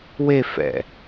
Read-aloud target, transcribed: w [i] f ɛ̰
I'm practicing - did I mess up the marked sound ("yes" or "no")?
yes